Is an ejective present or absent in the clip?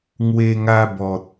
absent